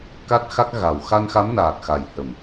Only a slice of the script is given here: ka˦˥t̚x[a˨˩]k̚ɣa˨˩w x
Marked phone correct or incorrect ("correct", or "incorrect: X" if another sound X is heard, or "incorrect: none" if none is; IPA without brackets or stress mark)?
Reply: incorrect: a˦˥